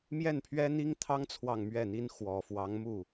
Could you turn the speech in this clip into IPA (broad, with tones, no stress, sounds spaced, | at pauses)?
m j ɛ˥˩ n pʰ ɥ ɛ˥ n̪ i˥ ŋ t̪ʰ ɑ˥ ŋ t͡sʰ w ɑ˥˧ ŋ m ɥ ɛ˥˩ n̪ i˥ n x w ɔ˨˩ f w ɑ˧˥ ŋ m u˥˩